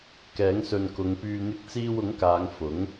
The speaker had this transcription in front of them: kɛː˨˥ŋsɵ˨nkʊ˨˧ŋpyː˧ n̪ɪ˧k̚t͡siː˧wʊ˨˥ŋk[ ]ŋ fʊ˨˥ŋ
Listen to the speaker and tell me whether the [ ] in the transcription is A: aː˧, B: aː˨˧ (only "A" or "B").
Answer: B